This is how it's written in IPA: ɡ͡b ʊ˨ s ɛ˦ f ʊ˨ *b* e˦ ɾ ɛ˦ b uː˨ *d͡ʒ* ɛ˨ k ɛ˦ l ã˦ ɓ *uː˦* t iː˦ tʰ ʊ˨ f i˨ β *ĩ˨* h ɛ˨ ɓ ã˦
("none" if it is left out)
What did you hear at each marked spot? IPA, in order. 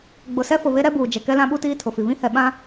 β, d͡ʒ, u˦, ĩ˦

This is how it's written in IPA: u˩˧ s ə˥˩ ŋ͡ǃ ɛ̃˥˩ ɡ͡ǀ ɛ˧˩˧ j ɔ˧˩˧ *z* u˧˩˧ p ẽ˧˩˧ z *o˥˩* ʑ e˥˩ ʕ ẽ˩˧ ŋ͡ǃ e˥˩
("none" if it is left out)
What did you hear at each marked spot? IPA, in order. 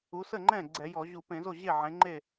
ʑ, o˥˩

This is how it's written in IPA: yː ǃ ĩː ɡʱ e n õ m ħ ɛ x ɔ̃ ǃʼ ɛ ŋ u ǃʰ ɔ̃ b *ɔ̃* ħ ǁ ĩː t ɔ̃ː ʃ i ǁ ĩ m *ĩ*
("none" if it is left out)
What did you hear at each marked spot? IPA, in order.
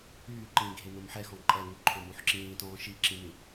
õ, ĩ

